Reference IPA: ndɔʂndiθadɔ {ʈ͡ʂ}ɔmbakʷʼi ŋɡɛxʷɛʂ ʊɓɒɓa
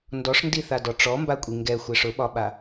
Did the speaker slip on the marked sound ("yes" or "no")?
no